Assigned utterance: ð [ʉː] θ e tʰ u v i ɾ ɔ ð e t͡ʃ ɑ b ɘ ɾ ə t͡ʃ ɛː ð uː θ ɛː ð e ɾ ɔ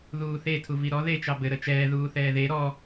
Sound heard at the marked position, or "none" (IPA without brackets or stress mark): uː